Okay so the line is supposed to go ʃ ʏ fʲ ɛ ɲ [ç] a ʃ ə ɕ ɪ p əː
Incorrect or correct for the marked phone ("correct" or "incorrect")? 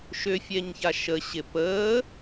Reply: correct